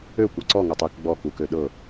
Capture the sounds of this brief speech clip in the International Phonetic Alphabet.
økʷɤ ǀɔŋøtˤ ik ɡ͡bɔkukø ɗɤ

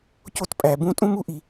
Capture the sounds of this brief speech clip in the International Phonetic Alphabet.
co˥tpʼæ˧bũ˥ tʼũ˥mu˥ʔi˧

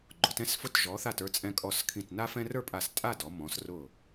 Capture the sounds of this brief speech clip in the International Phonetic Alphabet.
ɡ͡ǃʊ˩˧tɛ̃˥˧s fʊ˧˩tʒɔ˩˧θa˧˩t ə˞˧t͡sʼɛ̃˧kʼɔ˧˩s kʰĩ˧˩tna˥fɛ̃˥ rə˞˥˧pʼa˧˩stʼa˥˧dɔ˩˧ mɔ̃˩˧s rʊ˧˩

